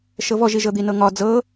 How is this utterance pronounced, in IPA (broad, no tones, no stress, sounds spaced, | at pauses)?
ʃ ɤ v ɔ ʒ i ʒ ɤ d̪ i n ɤ ŋ ɒ d͡z ɤ